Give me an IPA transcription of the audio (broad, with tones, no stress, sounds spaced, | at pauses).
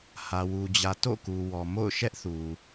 h ä˨ w u˨ d͡ʑ ä˨ t o̰˦˨ k u˨ w ɔ˨ m o̰˦˨ ʊ̯ ʃ ɛ˦ ʔ θ u˨